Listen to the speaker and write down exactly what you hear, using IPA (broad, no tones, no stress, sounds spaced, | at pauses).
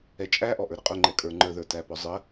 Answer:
ɛ t͡ʃʼ æ ʔ ɔ ʔ ə˞ ɾ ə qʼ ʊ ŋ͡ǃ ɛ kʼ ə˞ ŋ͡ǃ ə˞ ð ə˞ t æ p ɔ zˤ ə